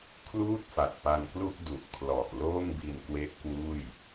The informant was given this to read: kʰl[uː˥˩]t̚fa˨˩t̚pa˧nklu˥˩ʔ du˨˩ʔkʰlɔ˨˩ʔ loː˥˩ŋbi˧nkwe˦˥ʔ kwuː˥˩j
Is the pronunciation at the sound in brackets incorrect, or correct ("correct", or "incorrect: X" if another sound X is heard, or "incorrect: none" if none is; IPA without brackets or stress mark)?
correct